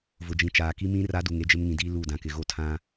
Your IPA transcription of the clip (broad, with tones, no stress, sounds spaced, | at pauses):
v ʊ˨ d͡ʒ ĩ˨ t͡ʃ aː˨ k i˦ m ĩ˦ r a˦ d u˨ ŋ e˦ d͡ʒ ɪ˦ m ŋ ĩ˨ d iː˦ l u˦˨ d ã˨ k ɪ˨ ɣ o˦ tʰ ã˦